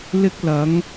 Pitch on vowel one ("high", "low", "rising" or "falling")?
high